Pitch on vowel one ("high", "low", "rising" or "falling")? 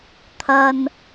low